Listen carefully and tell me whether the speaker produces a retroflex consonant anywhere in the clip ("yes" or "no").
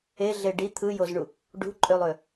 yes